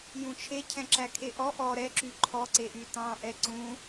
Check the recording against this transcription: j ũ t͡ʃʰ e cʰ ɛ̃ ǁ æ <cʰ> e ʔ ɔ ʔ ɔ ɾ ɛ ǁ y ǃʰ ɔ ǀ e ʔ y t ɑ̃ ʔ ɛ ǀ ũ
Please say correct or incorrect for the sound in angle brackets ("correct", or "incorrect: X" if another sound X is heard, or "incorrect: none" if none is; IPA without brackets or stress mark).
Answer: incorrect: kʰ